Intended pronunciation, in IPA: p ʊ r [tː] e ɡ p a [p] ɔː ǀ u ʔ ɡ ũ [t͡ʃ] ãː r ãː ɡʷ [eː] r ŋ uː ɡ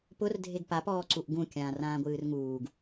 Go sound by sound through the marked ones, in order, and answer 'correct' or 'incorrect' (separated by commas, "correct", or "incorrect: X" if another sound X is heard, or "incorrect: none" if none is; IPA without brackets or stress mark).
incorrect: dʱ, correct, incorrect: kʲ, incorrect: ɨː